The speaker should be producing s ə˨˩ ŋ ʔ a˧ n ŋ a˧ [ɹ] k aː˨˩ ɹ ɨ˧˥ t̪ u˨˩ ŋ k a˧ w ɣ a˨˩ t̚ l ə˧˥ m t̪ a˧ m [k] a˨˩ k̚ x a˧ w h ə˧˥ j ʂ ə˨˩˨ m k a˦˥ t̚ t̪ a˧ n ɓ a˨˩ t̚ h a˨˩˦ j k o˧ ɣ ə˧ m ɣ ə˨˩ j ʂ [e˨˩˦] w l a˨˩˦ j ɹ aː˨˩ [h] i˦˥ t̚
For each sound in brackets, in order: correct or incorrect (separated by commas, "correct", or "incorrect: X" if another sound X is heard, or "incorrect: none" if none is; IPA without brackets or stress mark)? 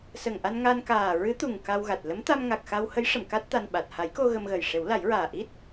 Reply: incorrect: n, incorrect: ŋ, correct, incorrect: ʔ